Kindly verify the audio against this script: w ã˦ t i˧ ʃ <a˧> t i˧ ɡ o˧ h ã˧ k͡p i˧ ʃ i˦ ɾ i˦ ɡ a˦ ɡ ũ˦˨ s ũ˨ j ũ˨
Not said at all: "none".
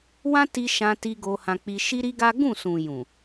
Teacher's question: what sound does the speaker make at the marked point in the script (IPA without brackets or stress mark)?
ã˧